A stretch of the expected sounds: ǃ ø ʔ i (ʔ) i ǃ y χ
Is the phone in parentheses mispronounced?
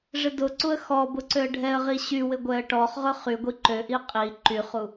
yes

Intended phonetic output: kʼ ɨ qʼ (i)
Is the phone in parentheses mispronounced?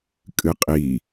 no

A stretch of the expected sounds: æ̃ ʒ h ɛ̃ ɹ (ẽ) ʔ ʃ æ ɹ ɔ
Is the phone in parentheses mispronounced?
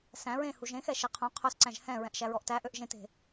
yes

